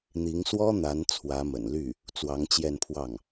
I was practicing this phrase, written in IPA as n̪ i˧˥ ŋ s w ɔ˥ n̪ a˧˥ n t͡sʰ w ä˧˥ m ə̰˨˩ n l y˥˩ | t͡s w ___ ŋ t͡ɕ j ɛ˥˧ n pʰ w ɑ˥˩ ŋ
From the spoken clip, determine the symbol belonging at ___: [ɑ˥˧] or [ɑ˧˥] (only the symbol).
ɑ˧˥